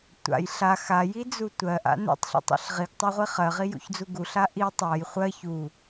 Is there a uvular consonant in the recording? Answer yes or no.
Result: yes